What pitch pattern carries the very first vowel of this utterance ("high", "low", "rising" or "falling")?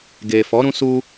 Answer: low